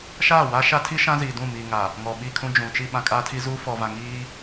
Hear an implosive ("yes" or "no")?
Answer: yes